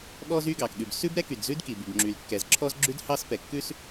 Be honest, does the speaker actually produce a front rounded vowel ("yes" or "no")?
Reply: yes